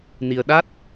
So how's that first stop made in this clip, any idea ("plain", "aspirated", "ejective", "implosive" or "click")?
implosive